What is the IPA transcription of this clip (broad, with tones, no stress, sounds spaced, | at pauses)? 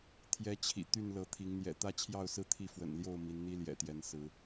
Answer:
t̪ʰ j ɛ˨˦ t͡ɕʰ ḭ˨˩ t̪ y˥˨ n l ɤ˨˦ t̪ʰ i˨˦ ŋ n̪ j ɛ̰˨˩ t̪ ä˥˨ t͡ɕʰ j ɑ˥˨ ʊ̯ s ɹ̩˥˨ t̪ʰ i˥˨ f w ə̰˨˩ n l j o˥˨ ʊ̯ m i˨˦ n n̪ i˦ l j ɛ̰˨˩ t̪ j ɛ˨˦ n s ɹ̩˨˦